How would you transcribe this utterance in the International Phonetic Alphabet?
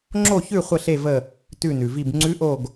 ŋ͡ǁo˦˨çʉ˦˨ χʷə˦˨ɬe˦˨ və˦˨ | tʉ˦˨nʉ˩vi˦˨b ŋ͡ǀʉ˧˥ʔo˦˨ɡ

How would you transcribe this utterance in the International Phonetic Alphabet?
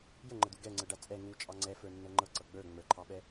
jəŋ͡ǃəd̪u ɡɛŋ͡ǀɤ ɖat͡sʼɛ ŋu t͡ʃʼɑŋ͡ǀɛfə˞ nːɤŋ͡ǃɤǀɤ ɡ͡bə˞ ŋ͡mə˞ǃʰɑɓɛ

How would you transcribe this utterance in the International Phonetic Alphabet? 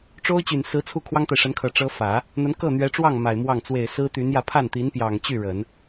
ʈ͡ʂo˥ʊ̯t͡ɕy˨˩n sɹ̩˧˥t͡sʰu˥˩ kʰwɑ˥ŋt̪a˨ɪ̯ʂə˧˥nkʰɤ˨˩ ʈ͡ʂɤ˥ fä˨˩˦ | n̪ə˧˥n kɤ˥˩n̪ɥɛ˧˥ʈ͡ʂwɑ˥˩ŋ ma˨˩ɪ̯mwɑ˥˩ŋ t͡swe˨˩ɪ̯ sɹ̩˥t̪y˧˥njä˧ pʰa˥˩nt̪i˧˥npjɑ˨˩ŋt͡ɕy˥˩ ɻə˨˩˦n

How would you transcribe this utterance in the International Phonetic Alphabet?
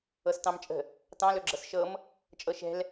ɤstɑ̃mt͡ʃʼə̤ | tɑ̃lɵɡ͡ǁɤs ʃɤm | t͡ʃʼɤʃɛ̤l

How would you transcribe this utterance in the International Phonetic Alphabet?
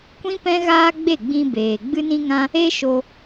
kʷĩ˦ pɛ̃˦ɣaː˦ɡ͡be˦˨ɡ͡bĩ˧ beː˨ ɡ͡bɨ˦nĩ˦ŋã˦ | e˦ʃo˧

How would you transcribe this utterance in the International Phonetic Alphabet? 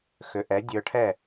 xʏ˩˥ʔɛ˩˥dʲə˞˧ʈʰɛ˥˩

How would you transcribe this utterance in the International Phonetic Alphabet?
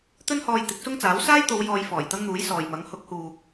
t̪ɵ˥nhɔː˧j t̪ɪ˨˥k̚sʊ˥ŋt͡saː˨˥w saː˥jt̪o˨˧w jɔː˨j fɔː˨˩jt̪ɐ˥ŋn̪uː˨˥j sɔː˨jmɐ˨˥ŋ hʊ˨˥k̚huː˨k̚

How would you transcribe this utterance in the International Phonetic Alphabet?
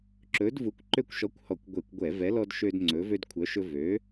ǁɵ˨˥d vu˨˥kʷǃø˦kʷʃɔ˨˥kʷhɔ˧˩˧kʷ ɡʷe˧˩˧kʷɡʷɛ˧˩˧vɛ˨˥lɔ˦d ʃø˦dŋ͡ǀɵ˨˥ vø˦dkʷʰœ˨˥ʃɵ˦ vø˨˥

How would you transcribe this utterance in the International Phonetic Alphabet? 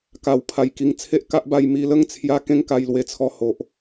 ka˨˩wpʰa˨˩j ki˨˩ŋ t͡sʰe˦ʔka˦ʔba˧j mi˧lə˥˧ŋt͡sʰja˧ kẽ˥˧ŋka˧jlwe˧ t͡sʰɔ˧ho˨ʔ

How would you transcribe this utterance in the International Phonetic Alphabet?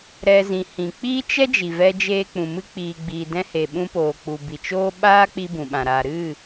ɾɛ˧ zĩ˨hĩ˨k͡piː˦ t͡ʃɛ˦ d͡ʒi˨vɛ˧d͡ʒeː˧k͡pũ˨ mɨ˧k͡piː˨ɡ͡bi˨ dɛ̃˧he˨ ɓũ˧poː˨ k͡pu˨bi˨t͡ʃoː˦ ɓaː˦k͡pi˧ bũ˨ɓã˨ ɾa˨ɾɨ˦˨

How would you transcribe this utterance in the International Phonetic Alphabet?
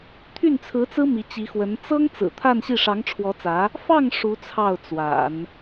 t̪ʰy˥˩nt͡sʰɹ̩˧˥t͡sɹ̩˥ mi˧˥t͡ɕi˧˥xwə˧˥n t͡sɤ˥ŋ t͡sɹ̩˨˩t̪ʰa˥˧nɕi˥˩ ʂɑ˧˥ŋʈ͡ʂʰwɔ˧˥t͡sä˧˥ | fɑ˥˩ŋ ʂu˧˥t͡sʰɑ˥˩ʊ̯t͡swa̰˨˩˦n

